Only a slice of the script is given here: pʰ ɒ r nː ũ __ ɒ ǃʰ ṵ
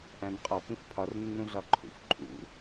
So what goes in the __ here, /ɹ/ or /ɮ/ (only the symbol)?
ɮ